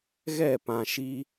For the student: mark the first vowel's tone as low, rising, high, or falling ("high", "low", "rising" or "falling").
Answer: falling